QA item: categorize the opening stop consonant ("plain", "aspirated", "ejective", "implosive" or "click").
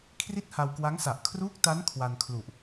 aspirated